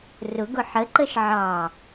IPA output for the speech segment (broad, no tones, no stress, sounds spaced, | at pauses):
r ʊ ɡ ʊ ħ ə ǃ ə ʃ ʕ ɑ